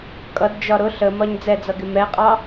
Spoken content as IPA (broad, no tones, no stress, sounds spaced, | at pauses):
kʼ ʌ d d͡ʒ ɒ ɾ ʊ ɬ ə m ɒ ɲ d͡z ɛ d͡z ʌ ɡ ɪ m ɛ qʼ ɑ